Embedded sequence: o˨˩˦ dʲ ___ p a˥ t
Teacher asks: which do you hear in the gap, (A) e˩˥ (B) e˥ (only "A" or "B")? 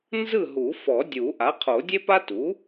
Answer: B